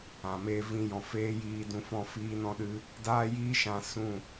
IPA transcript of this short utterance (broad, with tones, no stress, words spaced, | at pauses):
ã˨meː˧vĩ˧ jɔ̃˨feː˦ jiː˧dũ˧fɔ̃˦˨ fiː˦nɔ̃˦ɗɨ˦ | daː˦jiː˦ ʃã˧sũ˦˨